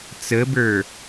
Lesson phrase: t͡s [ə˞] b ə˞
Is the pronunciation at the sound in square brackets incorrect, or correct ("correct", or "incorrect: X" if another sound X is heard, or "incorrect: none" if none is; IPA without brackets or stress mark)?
incorrect: ə